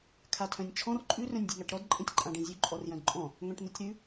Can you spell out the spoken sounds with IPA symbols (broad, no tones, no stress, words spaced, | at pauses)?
kʰatʰœ̃nʲt͡ʃʰɔ̃r ǃʼʉ rœ̃nʲdʲʉŋaʈɾɔd ǃʼẽtʲǃʼãɖẽzʲʉ ǃʼɔrjœ̃dǃʼɔ̃ | ŋœ̃ʈn̪ʉtʲɾʉ